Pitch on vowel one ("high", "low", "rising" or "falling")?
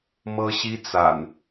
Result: high